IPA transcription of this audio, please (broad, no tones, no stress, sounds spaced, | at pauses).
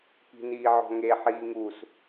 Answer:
p i̤ n iː ʕ ɔ̤ ŋ e ħ iː ŋ u s